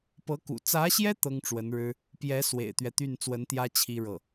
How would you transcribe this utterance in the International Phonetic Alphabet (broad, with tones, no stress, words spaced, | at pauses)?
pɤ˧˥kṵ˨˩ t͡sä˧˥ɕjɛ˥ t̪ɤ˥ŋʈ͡ʂwə˧˥nɻɻ̩˥ | pjɛ˧˥ swḛ˨˩ɪ̯t̪ɥɛ˦t̪y˥˩n t͡swə˧˥nt̪jä˥ t͡ɕʰi˥ɻɤ˥˩